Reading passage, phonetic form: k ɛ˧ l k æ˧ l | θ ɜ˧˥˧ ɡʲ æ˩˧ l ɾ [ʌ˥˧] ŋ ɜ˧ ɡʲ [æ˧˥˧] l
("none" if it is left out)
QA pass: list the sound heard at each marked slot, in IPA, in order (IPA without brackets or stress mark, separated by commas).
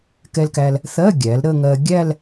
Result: ə˥˧, æ˥˧